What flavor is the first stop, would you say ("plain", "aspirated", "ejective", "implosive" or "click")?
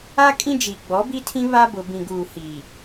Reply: ejective